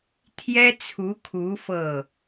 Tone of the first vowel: high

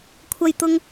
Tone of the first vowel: high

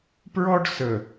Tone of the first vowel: high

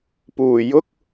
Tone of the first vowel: low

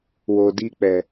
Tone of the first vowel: low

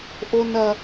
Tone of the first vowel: high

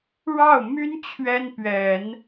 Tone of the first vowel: falling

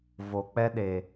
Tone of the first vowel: low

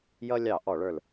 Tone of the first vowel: high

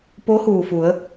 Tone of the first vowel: rising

